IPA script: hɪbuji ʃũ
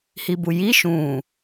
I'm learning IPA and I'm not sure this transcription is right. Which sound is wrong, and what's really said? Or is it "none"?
ɪ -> i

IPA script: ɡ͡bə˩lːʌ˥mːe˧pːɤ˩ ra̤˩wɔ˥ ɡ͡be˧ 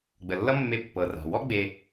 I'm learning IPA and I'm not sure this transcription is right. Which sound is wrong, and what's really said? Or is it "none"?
none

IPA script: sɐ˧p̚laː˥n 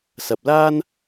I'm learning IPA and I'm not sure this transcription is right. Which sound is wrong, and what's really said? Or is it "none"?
none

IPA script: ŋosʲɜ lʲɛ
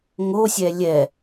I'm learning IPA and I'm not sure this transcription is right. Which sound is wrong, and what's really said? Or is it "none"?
ɜ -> ɛ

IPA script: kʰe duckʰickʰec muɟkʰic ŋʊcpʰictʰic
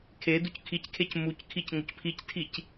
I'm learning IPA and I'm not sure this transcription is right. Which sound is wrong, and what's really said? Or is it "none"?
ɟ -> c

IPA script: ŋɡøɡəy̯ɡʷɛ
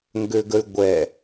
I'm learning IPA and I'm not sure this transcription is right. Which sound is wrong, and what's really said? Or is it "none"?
none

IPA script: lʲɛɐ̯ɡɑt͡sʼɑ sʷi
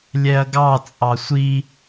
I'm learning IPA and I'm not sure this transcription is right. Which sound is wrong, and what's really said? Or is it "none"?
none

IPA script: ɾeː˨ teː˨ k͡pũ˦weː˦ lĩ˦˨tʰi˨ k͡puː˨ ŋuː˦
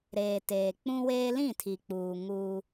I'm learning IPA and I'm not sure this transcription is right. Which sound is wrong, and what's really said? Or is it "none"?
none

